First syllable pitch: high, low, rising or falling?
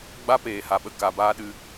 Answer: high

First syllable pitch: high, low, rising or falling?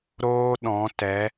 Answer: high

